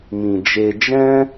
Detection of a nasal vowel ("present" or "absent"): present